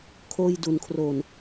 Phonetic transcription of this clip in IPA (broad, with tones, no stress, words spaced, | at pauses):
kʰoː˧jdu˩˦nkʰro˨˩n